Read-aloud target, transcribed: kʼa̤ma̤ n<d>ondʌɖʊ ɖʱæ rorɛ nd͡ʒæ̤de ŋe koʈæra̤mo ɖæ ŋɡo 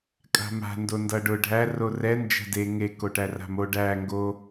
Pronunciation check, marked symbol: correct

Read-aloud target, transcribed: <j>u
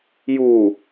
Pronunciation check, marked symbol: correct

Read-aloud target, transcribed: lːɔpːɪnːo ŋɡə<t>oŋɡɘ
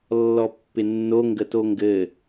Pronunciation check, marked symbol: correct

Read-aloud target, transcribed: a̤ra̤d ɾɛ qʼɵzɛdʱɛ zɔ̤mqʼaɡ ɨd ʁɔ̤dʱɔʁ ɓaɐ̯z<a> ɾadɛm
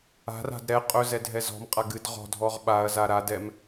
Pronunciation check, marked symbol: correct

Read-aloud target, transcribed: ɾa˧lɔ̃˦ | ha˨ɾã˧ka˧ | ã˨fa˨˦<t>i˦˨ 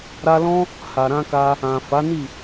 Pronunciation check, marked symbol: incorrect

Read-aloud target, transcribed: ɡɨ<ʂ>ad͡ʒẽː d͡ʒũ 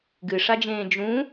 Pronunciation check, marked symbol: correct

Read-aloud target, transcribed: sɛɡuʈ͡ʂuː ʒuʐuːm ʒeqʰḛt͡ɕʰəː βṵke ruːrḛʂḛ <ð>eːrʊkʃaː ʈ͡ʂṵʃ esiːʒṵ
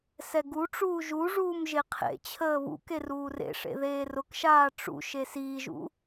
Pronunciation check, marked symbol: correct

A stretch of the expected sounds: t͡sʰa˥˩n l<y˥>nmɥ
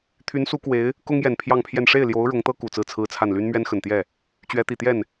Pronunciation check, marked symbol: correct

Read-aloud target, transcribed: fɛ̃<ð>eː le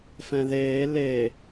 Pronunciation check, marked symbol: correct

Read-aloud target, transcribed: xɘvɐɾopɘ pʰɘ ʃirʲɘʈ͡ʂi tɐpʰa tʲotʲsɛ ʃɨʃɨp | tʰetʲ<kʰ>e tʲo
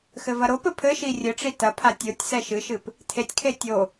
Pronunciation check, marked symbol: correct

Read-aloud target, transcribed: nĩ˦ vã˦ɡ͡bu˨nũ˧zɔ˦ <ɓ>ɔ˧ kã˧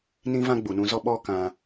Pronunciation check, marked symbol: correct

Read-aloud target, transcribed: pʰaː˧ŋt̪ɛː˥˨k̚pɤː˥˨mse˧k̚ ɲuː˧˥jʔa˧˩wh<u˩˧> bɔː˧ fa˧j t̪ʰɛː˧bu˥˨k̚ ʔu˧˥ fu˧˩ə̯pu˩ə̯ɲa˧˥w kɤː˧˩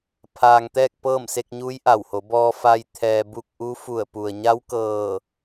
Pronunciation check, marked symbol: incorrect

